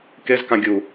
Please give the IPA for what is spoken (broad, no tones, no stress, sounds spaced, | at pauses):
k e z k ã ɡʲ u